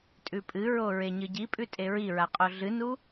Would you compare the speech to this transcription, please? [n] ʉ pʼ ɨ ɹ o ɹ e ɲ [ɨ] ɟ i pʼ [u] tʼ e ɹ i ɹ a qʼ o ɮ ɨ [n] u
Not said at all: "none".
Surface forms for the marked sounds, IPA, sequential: tʼ, ɨ, ʉ, n

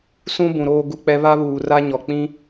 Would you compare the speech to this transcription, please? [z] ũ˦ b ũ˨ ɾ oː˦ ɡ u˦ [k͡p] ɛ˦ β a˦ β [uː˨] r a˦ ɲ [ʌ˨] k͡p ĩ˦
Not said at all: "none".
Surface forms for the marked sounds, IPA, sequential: s, k͡p, uː˨, ɔ˨

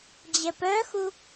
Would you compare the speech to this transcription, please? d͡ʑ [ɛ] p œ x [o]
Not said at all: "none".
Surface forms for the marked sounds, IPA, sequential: ɛ, u

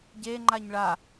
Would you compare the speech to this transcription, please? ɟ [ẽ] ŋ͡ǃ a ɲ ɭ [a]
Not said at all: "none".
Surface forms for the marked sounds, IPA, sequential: e, a

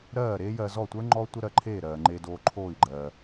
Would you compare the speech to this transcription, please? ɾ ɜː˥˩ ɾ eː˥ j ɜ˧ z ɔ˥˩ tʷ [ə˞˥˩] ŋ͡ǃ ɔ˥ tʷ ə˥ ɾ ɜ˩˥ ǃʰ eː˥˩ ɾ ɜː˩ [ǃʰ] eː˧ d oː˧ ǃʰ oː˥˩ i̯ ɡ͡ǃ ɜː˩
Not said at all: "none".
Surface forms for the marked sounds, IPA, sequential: ə˞˥, ŋ͡ǃ

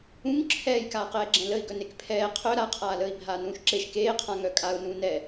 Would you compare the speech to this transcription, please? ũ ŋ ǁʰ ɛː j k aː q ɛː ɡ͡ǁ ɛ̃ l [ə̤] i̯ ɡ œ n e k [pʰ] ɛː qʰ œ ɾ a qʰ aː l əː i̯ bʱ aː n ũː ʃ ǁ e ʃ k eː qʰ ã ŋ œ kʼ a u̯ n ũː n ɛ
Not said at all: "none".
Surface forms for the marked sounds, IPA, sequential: ə, pʰ

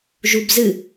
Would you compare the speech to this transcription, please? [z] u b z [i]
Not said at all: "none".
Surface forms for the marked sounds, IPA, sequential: ʒ, ɨ

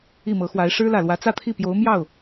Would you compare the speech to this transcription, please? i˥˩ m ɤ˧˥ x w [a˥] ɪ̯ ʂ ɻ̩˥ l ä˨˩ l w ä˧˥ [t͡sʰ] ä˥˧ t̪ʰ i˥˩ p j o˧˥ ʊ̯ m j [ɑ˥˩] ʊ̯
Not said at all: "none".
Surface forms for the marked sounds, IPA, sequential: a˧˥, t͡s, ɑ˥˩

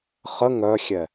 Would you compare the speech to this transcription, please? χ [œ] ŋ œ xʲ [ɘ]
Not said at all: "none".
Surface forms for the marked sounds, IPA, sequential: ə, ɛ

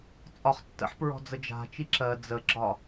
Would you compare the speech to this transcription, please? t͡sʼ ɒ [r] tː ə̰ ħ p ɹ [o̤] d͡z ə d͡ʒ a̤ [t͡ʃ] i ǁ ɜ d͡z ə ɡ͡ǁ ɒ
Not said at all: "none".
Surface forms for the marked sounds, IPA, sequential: χ, ɔ̤, t͡ʃ

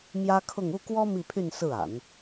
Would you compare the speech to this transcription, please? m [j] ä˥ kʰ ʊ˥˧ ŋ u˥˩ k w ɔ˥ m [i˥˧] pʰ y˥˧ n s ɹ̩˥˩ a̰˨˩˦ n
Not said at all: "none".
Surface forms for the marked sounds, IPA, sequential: j, i˥˧

